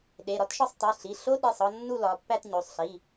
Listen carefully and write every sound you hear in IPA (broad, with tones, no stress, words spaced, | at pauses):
ɗe˩˧˩ɾɒ˦˥tʃɒ˥˧sˤ tˤe˩˧˩ɬi˩˧˩ ɬo˦˥ɗe˩˧˩sˤɒ˥˧ nːu˥˧lɒ˩˧pːæ˥˧tɲo˩˧˩sˤ ɬi˩˧˩